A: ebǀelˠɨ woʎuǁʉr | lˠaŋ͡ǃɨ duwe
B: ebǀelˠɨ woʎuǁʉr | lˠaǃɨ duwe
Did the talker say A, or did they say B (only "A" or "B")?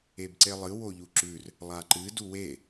B